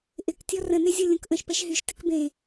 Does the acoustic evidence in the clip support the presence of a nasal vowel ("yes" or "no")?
yes